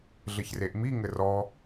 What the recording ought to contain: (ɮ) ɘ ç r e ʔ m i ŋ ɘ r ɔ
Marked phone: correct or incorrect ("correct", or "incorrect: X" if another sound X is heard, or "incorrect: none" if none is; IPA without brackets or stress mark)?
correct